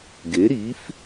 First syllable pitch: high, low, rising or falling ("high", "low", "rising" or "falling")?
rising